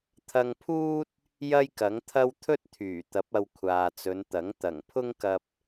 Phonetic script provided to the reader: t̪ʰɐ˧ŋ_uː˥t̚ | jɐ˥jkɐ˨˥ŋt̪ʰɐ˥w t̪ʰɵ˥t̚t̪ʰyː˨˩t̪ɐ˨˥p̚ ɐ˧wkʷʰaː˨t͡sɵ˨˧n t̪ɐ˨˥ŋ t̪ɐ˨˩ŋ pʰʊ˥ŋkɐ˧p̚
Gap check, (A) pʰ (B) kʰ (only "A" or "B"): A